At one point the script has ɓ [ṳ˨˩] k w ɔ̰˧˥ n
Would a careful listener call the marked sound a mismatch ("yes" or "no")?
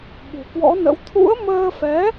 no